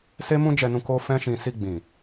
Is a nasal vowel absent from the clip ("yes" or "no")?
no